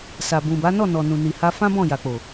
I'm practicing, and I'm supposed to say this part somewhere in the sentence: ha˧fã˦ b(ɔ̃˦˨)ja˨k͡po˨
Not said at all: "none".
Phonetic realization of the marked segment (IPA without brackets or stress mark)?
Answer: ɔ̃˦˨